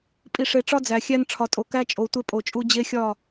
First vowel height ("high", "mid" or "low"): high